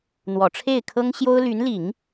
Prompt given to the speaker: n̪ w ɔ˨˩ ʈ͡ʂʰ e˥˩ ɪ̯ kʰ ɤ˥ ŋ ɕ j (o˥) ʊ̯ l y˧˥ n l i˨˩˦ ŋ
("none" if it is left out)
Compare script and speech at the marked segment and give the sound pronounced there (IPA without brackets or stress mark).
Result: o˥